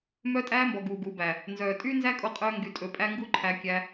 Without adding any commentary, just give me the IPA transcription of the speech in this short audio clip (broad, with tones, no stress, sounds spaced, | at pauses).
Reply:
m œ˧ tʼ æː˧ m b ɔ˨ ɡ uː˨ ɡ uː˨ b æ˨ | n z œː˨ tʼ yː˦ n z æ˦ kʼ o˧ qʼ œː˧ ŋ ɡ y˧ tʼ ɵ˧ pʼ æ˦ ŋ ɡ u˦ ǃʰ æ˧ kʲ æ˧